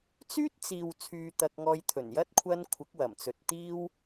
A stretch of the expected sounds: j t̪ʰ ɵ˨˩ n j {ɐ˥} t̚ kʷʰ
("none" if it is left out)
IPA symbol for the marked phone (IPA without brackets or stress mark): ɐ˥